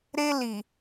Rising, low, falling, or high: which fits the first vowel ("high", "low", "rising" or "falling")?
high